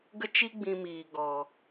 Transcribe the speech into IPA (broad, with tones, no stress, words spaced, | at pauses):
ɡə˦t͡ʃi˦ ɡ͡bĩ˧ miː˨ɡɔ˨